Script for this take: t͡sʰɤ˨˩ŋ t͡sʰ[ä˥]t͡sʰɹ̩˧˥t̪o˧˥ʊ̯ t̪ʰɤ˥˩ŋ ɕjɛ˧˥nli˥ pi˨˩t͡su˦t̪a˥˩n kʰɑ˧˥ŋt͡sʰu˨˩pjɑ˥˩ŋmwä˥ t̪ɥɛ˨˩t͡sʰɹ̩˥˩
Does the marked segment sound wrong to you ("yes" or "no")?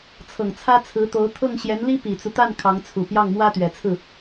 no